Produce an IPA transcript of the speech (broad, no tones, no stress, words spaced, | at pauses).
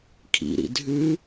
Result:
kʰḭɾḭ dʱʉ